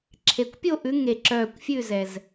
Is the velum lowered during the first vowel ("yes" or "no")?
no